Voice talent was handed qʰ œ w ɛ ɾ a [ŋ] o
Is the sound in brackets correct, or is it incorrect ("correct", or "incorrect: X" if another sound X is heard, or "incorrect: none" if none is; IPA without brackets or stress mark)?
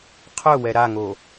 correct